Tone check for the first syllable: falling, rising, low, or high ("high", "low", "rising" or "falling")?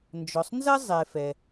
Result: low